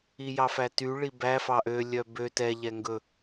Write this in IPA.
i j ɑ f æ t y ɭ i b æ f ɑ ʔ ø lʲ œ b ø t ɛ ʎ ɛ ŋ ɡ ɵ

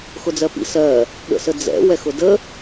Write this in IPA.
x ʊ d͡z ɜ p ḭ s ɜ | ɠ ə̰ s ə d͡z ɛ̰ w ɛ x ʊ d ə

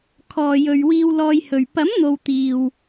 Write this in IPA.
kʰ ɔː˧ j ɵ˧ ɥ w iː˥ w l ɔː˥ j h ɵ˧ ɥ p ɐ˨˥ m n̪ o˨ w t̪ iː˨ w

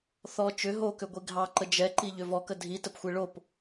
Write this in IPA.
θ ɔ t͡ʃ ʏ ɦ o k ʏ ɡʷ i ɡʱ ɑ ǃ ə d͡ʒ ɛ ǃ i ʎ ʏ v ɔ k ə dʱ i t ə p xʷ e ɭ o p

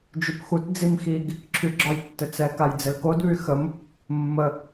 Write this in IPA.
d͡ʒ y p x u t d͡z i m x i ɡ | ǁʰ y ɡ͡ǁ ɒ j tː ɘ t͡s ɛ k a j d͡z ɘ l k o d β y x ə m | mː ə

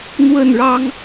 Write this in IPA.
n̪ w ə˥˨ n ɻ ɑ˦ ŋ

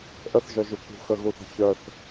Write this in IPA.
ʔ ə θ ʒ œ ʒ u k ṳ x ə ɣ u θ ə̤ ç œ θ

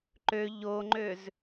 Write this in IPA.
ǃ ø ʎ o ŋ͡ǃ ø z

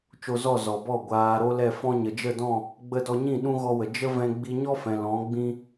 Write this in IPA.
t͡ʃ o˧ z ɔ˦˨ z ɔ˨ b ɔ˦˨ ɡʷ aː˨ ɾ o˦ l ɛ˦˨ f ɔ̃˦ ɲ ə˨ d͡ʒ ə˦˨ d ɔ̃˦˨ | ɡ͡b ə˧ d ɔ˧ ɲ ĩ˦˨ ɗ ũ˦ ɣ ɔ˧ w ə˨ d͡ʒ ə˦ v ɛ̃˧ ɡ͡b i˧ ɲ ɔ˦ f ɛ̃˨ l ɔ̃˨˦ ɡ͡b ĩ˦

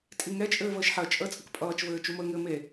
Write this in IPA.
tʼ i ŋ ɛ t͡ʃʼ ɘː v əː ʃ ħ ɜ t͡ʃʼ əː t͡sʼ ə k pʼ ʌː t͡ʃ v ɘː t͡ʃ u m əː ŋ ɘː m e

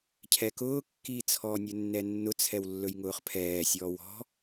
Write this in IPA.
cʰ ɛ k ʊː kː iː t͡sʰ ɔː nʲ ɵ nː ɛ nː ʊ t͡sʰ ɛ w lː ɵ j ŋ ʊː χ pʰ ɛː sʲ ɔː w ɔ̤

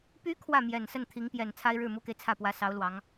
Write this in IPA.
p y˧˥ kʰ w ä˥˩ m j ɛ˨˩ n s ə˥˩ n t̪ʰ i˧˥ ŋ p j ɛ˨˩ n t͡sʰ a˥ ɪ̯ ɻ ɻ̩˥˩ m u˥ k e˨ ɪ̯ t͡sʰ ä˥˩ p w ä˧˥ s ɑ˧˥ ʊ̯ l w ɑ˧˥ ŋ

